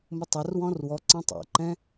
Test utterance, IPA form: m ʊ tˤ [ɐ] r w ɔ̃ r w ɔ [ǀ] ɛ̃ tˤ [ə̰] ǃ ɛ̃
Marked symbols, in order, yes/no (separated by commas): yes, yes, no